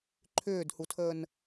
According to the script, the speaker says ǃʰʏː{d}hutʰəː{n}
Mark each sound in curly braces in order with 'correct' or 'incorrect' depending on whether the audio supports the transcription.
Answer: correct, correct

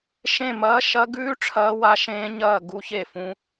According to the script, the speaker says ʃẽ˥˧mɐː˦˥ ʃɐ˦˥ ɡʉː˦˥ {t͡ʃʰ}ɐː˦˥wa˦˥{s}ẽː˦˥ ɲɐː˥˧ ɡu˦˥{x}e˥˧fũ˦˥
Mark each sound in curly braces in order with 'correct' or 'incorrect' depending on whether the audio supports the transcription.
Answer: incorrect: ʈ͡ʂʰ, incorrect: ʃ, incorrect: ç

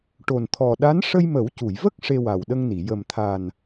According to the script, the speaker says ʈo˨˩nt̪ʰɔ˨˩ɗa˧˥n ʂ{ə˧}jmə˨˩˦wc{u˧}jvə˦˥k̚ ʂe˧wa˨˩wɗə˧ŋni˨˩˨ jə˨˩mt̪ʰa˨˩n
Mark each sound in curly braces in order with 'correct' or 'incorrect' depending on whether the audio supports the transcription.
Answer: correct, incorrect: u˨˩˨

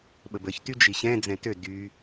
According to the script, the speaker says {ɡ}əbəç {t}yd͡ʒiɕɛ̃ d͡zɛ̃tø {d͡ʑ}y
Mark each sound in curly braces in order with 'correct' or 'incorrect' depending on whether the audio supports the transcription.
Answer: incorrect: ɓ, correct, incorrect: d

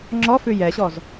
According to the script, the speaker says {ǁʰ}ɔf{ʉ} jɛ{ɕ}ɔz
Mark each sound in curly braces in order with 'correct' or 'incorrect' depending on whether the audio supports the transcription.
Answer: incorrect: ŋ͡ǁ, correct, correct

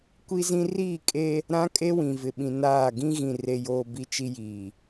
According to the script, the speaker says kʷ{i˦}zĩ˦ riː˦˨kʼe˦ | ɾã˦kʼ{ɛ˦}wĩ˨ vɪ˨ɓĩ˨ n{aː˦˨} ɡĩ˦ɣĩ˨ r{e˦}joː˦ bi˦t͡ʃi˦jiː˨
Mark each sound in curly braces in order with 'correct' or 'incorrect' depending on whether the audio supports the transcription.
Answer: correct, incorrect: e˦, correct, correct

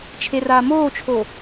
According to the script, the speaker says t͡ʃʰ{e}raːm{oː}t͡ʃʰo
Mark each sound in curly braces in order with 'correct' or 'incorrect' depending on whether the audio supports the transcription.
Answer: correct, correct

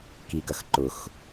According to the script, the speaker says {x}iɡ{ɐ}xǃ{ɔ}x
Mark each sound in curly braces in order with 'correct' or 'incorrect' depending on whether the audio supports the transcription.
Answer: incorrect: k, correct, incorrect: ʊ

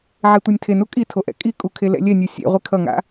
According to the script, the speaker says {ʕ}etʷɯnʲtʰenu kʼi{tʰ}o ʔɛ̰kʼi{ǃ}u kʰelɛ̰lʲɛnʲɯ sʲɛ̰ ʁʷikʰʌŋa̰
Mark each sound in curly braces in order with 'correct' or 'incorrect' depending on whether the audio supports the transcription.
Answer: correct, correct, incorrect: kʼ

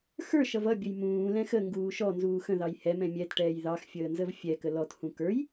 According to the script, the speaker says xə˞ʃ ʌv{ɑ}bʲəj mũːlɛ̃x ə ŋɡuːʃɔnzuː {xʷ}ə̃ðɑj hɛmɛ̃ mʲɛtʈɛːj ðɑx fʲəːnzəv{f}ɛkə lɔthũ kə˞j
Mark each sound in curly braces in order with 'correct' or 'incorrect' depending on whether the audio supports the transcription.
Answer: incorrect: ʌ, incorrect: x, incorrect: fʲ

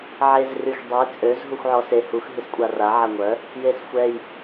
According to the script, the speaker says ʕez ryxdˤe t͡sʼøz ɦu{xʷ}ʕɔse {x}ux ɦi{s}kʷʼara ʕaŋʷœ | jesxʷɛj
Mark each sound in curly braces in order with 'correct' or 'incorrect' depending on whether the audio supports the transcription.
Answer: correct, incorrect: h, correct

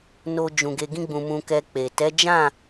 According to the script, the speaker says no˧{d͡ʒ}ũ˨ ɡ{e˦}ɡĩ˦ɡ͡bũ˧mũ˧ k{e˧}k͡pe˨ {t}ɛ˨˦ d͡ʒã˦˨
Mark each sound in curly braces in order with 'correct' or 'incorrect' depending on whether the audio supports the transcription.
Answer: correct, incorrect: e˧, incorrect: ɛ˧, correct

